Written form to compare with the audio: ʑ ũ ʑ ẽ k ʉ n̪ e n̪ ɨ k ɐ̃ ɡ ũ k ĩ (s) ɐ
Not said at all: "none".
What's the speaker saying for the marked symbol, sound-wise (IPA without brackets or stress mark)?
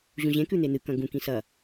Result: s